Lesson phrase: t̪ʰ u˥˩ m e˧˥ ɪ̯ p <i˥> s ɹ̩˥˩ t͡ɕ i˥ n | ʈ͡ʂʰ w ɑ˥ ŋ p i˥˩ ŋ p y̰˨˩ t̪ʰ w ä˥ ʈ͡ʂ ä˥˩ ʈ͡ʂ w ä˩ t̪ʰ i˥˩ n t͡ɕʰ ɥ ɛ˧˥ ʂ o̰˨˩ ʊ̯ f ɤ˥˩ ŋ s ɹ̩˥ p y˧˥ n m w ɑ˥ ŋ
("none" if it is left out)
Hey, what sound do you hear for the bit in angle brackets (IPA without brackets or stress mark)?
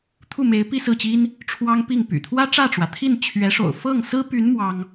i˥˧